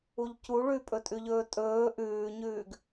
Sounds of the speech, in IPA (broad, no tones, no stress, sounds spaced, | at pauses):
u ʎ c u ɭ ʉ pʼ ɵ tʼ ʉ ʎ ɵː tʼ ɵː ʔ ʉː ɲ ʉː ɡ